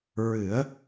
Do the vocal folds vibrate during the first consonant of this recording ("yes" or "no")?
yes